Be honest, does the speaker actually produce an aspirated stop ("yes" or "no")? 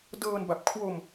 yes